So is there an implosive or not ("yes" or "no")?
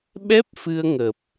yes